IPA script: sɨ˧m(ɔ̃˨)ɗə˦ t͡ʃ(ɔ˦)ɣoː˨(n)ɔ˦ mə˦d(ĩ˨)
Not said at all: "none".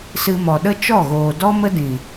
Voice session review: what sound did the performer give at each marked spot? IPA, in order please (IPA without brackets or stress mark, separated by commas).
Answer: ɔ˨, ɔ˦˨, d, ĩ˨